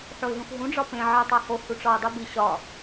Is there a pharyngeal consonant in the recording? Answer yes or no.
yes